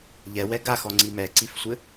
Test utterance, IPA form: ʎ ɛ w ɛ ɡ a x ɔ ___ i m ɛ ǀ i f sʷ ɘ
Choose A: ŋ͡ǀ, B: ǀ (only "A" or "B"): A